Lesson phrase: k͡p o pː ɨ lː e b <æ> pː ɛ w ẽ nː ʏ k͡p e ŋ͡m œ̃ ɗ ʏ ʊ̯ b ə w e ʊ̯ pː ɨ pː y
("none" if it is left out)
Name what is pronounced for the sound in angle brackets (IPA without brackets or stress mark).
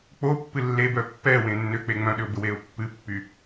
œ